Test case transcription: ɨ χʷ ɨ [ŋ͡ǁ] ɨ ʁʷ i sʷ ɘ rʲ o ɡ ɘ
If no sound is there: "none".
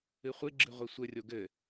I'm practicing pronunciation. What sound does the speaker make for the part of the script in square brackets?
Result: ɡ͡ǁ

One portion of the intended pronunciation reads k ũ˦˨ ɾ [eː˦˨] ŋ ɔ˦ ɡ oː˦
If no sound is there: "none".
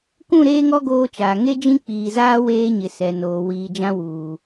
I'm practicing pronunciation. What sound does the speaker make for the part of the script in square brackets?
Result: eː˦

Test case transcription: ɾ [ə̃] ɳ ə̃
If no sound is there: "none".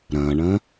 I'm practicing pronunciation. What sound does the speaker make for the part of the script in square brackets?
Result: ɐ̃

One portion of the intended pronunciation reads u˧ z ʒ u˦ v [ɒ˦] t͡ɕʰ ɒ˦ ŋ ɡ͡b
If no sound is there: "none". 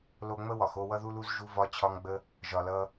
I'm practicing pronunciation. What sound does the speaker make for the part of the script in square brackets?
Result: ɒ˦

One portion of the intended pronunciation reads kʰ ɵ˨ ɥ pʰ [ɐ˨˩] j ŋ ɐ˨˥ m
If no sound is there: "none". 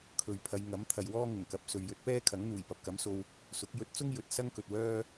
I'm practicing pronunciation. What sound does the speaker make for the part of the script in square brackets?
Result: ɐ˨˧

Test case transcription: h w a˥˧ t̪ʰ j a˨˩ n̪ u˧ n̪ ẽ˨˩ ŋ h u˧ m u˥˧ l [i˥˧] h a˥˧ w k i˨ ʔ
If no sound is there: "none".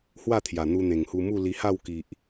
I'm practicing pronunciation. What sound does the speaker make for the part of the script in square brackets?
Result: i˧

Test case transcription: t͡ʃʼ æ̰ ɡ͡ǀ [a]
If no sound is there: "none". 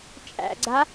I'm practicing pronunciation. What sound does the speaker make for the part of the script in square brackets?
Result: a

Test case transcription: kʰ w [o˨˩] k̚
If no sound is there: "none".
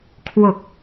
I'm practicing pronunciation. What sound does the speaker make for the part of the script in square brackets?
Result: o˨˩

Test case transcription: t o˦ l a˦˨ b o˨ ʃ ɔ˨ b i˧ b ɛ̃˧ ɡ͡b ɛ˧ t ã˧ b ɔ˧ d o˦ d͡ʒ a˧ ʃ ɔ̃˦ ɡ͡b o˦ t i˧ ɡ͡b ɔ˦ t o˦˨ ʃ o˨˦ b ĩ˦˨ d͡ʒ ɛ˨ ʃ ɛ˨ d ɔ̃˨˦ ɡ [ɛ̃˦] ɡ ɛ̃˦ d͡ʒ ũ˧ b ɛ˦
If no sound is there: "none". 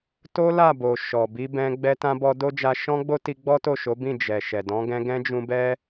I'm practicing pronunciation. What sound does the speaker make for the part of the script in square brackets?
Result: ɛ̃˧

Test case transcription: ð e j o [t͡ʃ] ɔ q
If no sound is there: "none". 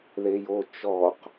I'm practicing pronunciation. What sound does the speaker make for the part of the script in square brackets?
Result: t͡ʃ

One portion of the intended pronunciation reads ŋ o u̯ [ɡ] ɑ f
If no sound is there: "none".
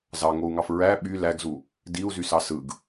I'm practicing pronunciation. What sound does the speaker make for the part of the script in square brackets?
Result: ŋ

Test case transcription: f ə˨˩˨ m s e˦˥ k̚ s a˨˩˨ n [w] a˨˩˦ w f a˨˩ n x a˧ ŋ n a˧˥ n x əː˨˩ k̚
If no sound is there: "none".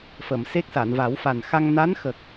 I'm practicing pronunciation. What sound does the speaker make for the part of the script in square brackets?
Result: v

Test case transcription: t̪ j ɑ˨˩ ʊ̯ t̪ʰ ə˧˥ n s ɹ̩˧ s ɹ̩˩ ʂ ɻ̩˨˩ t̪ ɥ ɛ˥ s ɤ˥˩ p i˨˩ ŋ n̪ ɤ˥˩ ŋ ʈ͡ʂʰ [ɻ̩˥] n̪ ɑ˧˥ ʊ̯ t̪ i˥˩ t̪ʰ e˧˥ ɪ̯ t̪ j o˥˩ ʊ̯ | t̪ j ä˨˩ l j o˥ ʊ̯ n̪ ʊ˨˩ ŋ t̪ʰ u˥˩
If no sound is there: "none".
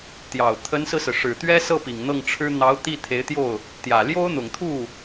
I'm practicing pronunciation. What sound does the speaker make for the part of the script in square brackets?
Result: ɻ̩˥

